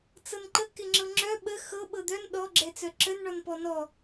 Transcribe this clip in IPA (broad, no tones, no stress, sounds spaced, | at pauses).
t͡s ɤ n ǃ ə k ɪ ŋ͡ǁ ɤ ŋ͡ǁ œ ɓ ə x ɤ ɓ ɤ d̪ œ n ɗ ɔ ɡ͡ǁ ɛ t͡s œ ǁ ə n ɳ ɔ n p ɔ n ɔ